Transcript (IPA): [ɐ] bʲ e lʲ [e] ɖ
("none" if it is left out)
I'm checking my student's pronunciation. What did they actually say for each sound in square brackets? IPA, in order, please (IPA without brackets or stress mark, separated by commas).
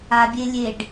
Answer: a, e